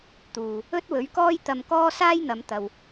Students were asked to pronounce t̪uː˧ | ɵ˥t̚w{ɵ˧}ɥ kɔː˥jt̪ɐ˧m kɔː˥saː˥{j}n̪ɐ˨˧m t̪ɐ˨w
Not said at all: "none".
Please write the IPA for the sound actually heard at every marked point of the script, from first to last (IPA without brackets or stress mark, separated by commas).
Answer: ɵ˨˥, j